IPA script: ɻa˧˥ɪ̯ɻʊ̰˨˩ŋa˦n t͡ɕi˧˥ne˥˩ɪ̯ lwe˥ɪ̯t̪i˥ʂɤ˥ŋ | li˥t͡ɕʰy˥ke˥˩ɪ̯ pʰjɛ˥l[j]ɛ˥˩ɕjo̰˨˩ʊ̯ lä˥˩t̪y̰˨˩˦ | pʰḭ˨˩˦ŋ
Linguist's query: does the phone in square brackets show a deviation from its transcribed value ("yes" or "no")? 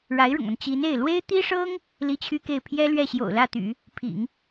yes